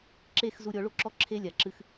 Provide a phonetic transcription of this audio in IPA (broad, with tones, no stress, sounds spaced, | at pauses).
ǁ e˦˨ x z u˧ ɾʲ ɔ˨˦ ɭ o˦ ǁ ɔ˦ ǁʰ e˦ lʲ a˨ ǁ ɨ˦ x